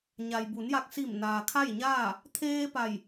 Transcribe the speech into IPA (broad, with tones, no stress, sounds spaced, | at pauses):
ɲ a˩ j b u˩˧ n j a˧ k̚ s i˧˩ m n aː˩ kʰ a˥˨ j ɲ aː˥˨ | t̪ʰ eː˧ p a˧˩ j